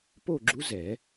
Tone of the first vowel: falling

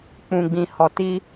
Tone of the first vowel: low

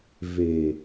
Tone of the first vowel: low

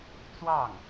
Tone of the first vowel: falling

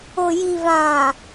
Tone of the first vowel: low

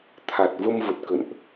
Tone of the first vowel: low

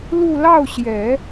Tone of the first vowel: falling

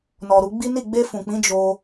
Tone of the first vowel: low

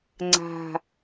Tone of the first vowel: low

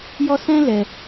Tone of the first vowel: high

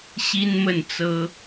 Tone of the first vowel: high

